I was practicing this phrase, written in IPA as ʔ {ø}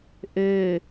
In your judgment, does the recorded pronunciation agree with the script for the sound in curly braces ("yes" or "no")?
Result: yes